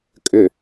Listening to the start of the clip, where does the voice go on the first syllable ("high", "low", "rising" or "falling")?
low